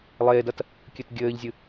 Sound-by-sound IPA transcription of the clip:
lˠ eː d ɐ t | kʲ ɨ t ɡʲ ɘː ʎ zʲ ɨ

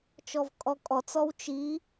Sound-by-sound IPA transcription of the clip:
t͡ʃ ɔ v kʼ ɔ kʼ ɔ t͡s ɔ w t͡ʃ i

